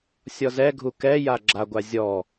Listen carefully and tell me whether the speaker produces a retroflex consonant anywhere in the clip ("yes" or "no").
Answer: no